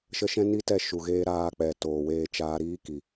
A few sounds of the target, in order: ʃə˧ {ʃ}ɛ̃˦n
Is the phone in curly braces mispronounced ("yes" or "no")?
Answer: no